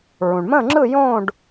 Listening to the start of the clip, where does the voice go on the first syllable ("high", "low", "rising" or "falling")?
low